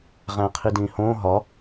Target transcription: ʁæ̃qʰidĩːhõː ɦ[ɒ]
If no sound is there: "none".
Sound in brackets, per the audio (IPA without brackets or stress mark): ɒ